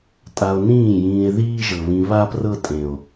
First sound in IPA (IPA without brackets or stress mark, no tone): tʼ